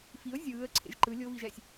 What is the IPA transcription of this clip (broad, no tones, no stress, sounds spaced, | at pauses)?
f i ʊ̯ zʲ ɯː ə̯ ǀʰ ḛ ʒ ǃ ɯ lʲ o v i ʒ ɛ sʲ